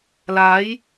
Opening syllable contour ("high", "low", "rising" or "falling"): rising